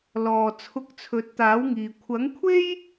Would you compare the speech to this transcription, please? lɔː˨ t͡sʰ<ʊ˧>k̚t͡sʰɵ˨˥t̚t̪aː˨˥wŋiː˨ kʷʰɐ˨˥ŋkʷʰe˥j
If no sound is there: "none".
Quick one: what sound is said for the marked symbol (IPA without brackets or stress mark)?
ʊ˧